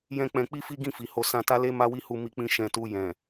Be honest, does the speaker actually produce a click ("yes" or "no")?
no